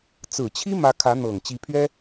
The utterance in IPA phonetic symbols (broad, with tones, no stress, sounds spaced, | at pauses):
t͡s ɹ̩˨˩ t͡ɕʰ i˥ m ä˧˥ kʰ ä˧˥ n̪ ɤ˨˩ ŋ t͡ɕ i˧˥ pʰ ɥ ɛ˥